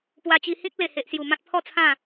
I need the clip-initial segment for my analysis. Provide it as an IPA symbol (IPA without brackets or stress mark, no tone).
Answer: p